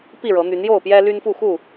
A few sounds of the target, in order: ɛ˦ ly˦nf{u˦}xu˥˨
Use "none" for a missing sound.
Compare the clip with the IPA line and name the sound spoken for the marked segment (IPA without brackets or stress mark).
u˥˨